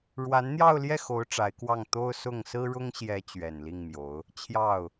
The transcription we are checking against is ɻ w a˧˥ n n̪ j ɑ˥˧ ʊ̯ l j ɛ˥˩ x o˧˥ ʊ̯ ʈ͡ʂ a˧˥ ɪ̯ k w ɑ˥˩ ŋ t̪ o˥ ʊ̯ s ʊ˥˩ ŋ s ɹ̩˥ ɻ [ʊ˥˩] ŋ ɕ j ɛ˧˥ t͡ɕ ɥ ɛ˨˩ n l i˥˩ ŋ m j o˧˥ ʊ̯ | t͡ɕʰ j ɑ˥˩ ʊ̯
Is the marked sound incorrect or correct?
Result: incorrect